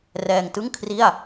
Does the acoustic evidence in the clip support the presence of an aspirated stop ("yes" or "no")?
yes